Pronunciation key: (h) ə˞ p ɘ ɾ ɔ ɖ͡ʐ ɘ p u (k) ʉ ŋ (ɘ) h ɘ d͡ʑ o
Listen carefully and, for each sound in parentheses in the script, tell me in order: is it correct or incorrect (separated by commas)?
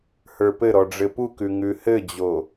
correct, correct, incorrect